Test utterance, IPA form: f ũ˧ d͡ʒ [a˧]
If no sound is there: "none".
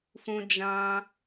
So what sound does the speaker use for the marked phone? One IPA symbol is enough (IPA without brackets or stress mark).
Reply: ã˧